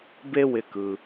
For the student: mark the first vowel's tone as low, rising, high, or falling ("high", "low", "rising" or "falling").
high